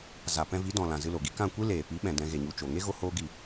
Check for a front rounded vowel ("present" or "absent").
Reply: absent